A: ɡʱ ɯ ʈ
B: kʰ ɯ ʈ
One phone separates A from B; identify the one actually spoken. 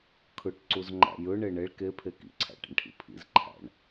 B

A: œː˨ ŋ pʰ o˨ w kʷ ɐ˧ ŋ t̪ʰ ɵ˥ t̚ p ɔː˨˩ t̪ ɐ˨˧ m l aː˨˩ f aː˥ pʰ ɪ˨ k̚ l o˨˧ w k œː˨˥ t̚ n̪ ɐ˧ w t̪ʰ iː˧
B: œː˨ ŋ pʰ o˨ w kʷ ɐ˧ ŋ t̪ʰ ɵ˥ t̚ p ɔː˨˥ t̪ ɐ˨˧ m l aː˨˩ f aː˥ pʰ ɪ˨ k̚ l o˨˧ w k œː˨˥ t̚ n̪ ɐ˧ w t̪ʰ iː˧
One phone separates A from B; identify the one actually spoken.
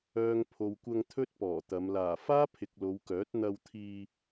A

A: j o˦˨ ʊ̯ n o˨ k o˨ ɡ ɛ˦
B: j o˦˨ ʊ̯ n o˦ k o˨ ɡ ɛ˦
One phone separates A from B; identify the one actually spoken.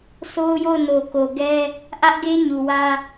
A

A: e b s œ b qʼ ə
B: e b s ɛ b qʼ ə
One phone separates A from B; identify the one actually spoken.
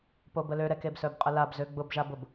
A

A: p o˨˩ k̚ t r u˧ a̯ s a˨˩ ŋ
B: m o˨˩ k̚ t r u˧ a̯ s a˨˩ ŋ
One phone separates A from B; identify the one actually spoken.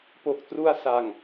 A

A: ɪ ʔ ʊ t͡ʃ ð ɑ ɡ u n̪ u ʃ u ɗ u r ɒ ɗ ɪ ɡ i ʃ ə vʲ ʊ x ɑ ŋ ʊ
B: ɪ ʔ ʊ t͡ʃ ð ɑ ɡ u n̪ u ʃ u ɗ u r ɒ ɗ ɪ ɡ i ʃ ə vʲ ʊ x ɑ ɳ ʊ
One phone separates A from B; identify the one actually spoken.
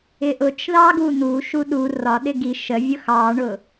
B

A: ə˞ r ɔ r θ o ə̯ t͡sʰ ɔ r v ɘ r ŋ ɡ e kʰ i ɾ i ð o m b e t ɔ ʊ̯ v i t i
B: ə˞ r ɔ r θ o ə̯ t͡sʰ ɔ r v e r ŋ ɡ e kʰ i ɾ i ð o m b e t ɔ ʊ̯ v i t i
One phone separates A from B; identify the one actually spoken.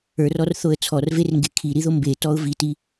B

